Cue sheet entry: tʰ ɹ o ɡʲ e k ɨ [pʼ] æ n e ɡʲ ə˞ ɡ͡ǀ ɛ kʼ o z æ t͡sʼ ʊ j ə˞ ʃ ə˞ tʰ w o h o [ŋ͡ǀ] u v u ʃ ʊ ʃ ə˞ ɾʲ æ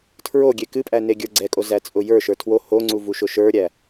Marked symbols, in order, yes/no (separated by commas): yes, yes